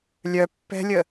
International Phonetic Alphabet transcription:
lʲœ pːɛ̤lʲə

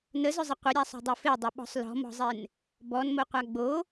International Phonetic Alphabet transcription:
nəzʏzˤə qʷəɾʲasˤo̤dˤo fedˤʏɓɔ̤sˤ lɔ̤mɔ̤zˤen | bɔnmoqʷa ɡ͡bo

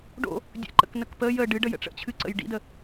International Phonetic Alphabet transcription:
ɖo̰ | dʲə̰ǃə̰knək pəːj ə ɖɨɖəjə̰ ʈ͡ʂə̰t͡ɕʰɨǀə̰j ɖḭdə

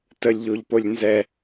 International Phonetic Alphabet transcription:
təlʲʎoʎpolʲ nzɛ

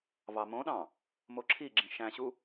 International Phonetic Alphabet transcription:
vɑmõɗɑ̃ | moǁʰiɡ͡ǁĩ ʃæ̃ɕu

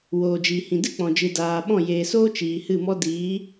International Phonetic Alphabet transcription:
woː˧d͡ʒiː˧hĩ˧ dɨ˦ k͡pɔ̃˨d͡ʒɨ˨daː˨ɓɔ̃˦˨ jeː˨soː˦ t͡ʃiː˨hɨ˦˨mɔ˦ diː˨˦

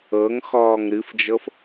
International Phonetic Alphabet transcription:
ɤŋxɔːŋ ɾɨfd͡ʒɤf

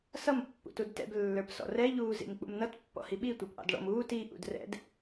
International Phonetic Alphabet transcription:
sʌm pːṵtudtɛ̰b lːə˞psɔ̰rɛ ʎuːzḭmk͡pṵmnʌt pːɔ̰hiɓi tʷə˞pʔɑ̰dɭɔ̰m uːt i ʔṵdrɛ̰d

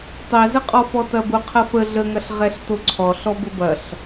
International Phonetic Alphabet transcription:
tˤɛzəqʼɔ fɔtɐbʊ qʰɐfə ɮəŋɐɬ ʁɛɬtoǀʰɔ ɬɔbʊbɐɬ

